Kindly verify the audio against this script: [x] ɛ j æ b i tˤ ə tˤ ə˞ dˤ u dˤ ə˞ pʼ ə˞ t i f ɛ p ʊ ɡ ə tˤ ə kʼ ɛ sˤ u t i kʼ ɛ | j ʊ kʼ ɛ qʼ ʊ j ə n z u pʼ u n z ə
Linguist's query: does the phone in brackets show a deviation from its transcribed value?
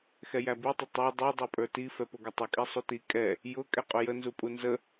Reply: no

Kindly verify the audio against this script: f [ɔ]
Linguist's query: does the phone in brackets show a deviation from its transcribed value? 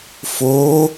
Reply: yes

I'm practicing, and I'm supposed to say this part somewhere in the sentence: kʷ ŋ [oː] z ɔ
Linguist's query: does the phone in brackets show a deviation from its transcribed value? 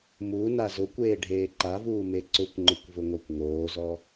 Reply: no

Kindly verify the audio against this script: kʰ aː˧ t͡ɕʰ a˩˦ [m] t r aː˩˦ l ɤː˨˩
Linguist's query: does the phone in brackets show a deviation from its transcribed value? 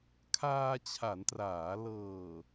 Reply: yes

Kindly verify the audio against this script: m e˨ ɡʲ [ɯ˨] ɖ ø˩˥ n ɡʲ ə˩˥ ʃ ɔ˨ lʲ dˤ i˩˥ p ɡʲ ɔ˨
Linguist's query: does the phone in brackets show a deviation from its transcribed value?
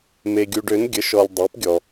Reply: yes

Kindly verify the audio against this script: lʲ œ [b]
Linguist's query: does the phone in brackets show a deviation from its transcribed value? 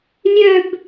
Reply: no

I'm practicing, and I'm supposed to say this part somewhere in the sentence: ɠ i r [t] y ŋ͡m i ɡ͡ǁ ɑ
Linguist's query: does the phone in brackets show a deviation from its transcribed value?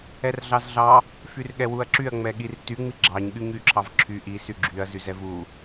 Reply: no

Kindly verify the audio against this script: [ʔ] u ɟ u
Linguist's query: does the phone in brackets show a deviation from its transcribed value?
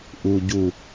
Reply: no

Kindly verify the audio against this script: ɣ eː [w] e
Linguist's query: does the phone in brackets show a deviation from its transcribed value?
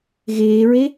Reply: yes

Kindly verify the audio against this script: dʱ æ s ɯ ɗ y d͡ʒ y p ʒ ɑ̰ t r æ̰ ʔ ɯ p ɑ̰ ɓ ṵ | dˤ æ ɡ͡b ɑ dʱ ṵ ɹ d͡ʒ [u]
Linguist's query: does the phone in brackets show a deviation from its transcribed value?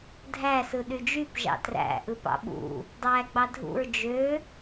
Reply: yes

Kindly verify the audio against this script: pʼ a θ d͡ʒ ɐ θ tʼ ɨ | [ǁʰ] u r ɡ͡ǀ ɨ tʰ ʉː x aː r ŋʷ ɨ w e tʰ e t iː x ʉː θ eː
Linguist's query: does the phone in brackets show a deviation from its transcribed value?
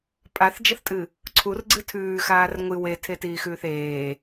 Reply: yes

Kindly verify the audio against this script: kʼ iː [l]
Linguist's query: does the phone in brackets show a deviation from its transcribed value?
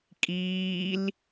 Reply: no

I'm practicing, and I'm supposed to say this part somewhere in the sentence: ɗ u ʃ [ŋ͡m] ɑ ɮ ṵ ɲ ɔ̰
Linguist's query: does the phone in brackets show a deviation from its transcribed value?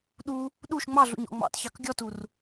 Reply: no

